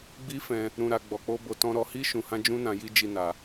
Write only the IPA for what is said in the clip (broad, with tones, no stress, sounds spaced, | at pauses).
ɡ͡b i˦ f ɛ̃˧ | ɾ ũ˧ ɾ a˧ ɡ͡b ɔ˧ k͡p o˦ b o˧ t ɔ̃˧ ɾ ɔ˧ h i˦ ʃ ũ˧ h ã˦ d͡ʒ ũ˦ n ã˧ j i˦ d͡ʒ i˦ n a˧